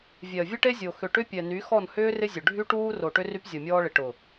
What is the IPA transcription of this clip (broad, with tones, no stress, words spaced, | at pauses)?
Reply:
vʲɛ˨ə̯vʲə˦ʈe˦zʲo˨ xʏ˨ʈʏ˦pʲɛ˨ ny˨˦xɔ˦˨nhʏː˦ rɪ˦zʲʊ˨ ɖʱy˦ʈuː˦ ro˨ʈʏ˦ ry˦pzʲɔ˨mʲɔː˦ɭɪ˨ ʈʊ˨